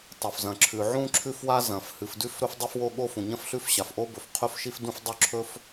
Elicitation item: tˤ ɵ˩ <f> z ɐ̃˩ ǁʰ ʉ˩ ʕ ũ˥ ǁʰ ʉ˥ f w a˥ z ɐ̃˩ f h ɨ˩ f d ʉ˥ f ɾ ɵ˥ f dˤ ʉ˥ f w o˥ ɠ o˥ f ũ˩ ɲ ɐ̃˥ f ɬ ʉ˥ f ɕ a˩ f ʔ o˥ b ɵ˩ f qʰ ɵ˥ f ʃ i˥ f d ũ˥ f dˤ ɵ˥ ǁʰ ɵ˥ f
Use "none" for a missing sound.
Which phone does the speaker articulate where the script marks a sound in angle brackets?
f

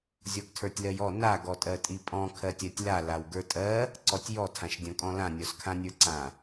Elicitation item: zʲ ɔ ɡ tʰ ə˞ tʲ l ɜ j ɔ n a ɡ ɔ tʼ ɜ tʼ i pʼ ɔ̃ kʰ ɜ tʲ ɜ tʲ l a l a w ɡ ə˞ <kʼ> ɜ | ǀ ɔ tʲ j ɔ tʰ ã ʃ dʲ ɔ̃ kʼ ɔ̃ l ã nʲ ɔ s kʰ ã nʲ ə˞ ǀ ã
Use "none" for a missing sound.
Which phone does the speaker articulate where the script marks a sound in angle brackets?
tʼ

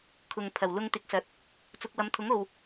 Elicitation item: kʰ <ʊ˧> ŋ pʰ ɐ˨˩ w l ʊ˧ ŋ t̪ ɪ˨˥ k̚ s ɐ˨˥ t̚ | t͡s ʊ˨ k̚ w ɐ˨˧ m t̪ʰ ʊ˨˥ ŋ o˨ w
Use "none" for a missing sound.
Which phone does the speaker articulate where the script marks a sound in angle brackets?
ʊ˨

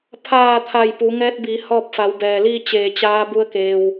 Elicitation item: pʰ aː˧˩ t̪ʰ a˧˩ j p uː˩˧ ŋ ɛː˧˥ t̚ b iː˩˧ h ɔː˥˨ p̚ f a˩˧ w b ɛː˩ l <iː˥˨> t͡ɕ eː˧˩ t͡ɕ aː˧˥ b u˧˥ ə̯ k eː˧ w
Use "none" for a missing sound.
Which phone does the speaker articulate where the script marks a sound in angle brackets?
iː˥˨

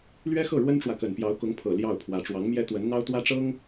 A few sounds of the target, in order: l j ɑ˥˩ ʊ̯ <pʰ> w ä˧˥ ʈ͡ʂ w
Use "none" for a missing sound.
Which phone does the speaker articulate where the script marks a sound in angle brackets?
pʰ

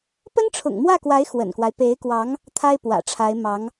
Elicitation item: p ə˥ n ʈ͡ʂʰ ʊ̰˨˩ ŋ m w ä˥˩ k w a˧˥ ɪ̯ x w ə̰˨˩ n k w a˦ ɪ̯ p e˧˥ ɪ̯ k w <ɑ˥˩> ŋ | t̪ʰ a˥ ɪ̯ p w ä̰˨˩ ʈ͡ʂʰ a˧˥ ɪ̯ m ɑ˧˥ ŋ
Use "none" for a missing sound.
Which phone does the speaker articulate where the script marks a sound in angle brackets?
ɑ˧˥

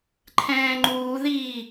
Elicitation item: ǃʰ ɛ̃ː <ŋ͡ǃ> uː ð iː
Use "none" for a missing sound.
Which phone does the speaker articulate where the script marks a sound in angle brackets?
ŋ͡ǃ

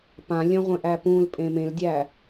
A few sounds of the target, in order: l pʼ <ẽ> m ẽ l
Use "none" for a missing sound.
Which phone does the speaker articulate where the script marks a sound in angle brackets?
ẽ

